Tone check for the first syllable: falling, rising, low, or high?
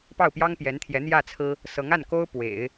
falling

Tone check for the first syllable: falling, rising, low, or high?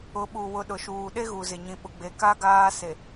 rising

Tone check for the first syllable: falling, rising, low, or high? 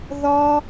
high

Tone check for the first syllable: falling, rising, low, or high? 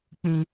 low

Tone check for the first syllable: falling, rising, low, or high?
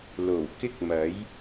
low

